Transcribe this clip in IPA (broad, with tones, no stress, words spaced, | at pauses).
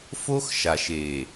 fo˦xʃa˨ʃ e˨